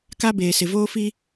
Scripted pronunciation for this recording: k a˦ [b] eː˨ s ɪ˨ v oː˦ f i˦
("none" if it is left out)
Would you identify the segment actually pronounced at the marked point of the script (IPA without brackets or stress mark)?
b